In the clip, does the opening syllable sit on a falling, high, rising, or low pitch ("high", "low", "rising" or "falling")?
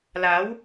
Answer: rising